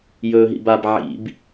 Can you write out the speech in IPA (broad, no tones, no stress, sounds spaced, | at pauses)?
j ɵː ɦ ḭ b a b ʕ ḭ b